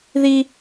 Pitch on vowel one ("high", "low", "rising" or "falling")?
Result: high